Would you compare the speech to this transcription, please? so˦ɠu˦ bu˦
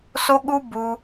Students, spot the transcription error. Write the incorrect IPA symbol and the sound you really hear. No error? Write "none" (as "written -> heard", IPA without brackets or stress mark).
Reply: none